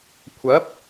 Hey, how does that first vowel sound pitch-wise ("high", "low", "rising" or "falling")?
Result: rising